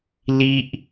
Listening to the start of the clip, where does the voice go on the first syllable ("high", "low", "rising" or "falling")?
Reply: high